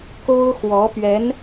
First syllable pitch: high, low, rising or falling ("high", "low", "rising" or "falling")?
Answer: high